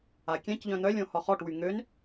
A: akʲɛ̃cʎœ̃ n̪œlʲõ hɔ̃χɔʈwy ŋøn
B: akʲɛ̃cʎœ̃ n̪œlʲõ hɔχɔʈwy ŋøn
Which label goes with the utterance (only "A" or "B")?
B